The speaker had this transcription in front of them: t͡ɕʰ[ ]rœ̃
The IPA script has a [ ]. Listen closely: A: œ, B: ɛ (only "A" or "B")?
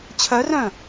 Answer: A